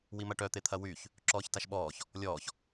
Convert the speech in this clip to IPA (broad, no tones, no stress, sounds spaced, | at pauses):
w i m ɐ ʈ œ t̪ e t̪ʰ ɐ w y ç | ǁ ɔː ç t a ʃ ɓ ɔː ç | lʲ ɔː ç